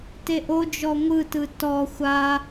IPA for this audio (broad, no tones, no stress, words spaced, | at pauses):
teʔo d͡ʒɔŋʷɯtɯ tɔ xʷa